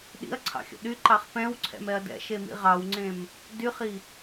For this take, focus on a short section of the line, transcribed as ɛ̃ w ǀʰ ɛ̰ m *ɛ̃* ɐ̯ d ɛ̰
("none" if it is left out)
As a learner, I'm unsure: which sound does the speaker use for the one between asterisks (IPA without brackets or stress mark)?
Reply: ɛ